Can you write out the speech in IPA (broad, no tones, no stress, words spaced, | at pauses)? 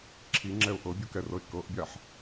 ǁʰiŋ͡ǁɛʊ̯ ʔɤbʲukɛrɤɪ̯ kɤʔbʲaħ